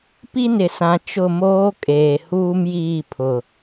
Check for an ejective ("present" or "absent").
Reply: present